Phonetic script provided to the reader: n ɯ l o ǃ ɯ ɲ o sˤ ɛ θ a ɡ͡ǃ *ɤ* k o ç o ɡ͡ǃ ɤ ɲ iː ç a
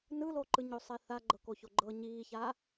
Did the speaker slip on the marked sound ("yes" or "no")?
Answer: no